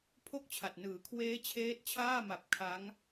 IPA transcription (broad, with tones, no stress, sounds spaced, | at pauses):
pʰ o˥˩ k̚ t͡ɕʰ a˨˩ t̚ n ɯː˩˦ kʰ w eː˦˥ t͡ɕʰ eː˦˥ t̚ t͡ɕʰ aː˥˩ m a˨˩ p̚ kʰ a˦˥ ŋ